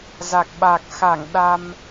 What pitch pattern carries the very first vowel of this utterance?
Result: low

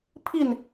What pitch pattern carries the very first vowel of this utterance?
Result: falling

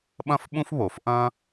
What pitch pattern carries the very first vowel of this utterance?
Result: high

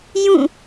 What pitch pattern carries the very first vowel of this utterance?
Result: falling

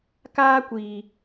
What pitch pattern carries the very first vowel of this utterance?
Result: high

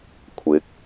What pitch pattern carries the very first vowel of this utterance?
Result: rising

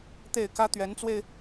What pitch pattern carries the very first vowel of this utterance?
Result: falling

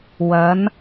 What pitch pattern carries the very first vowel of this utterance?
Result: rising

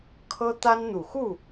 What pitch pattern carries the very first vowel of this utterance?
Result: high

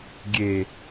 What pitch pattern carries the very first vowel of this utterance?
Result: low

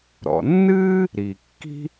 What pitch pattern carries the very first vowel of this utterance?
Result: low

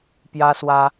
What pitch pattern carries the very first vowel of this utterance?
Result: high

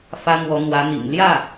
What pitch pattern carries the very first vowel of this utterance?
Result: high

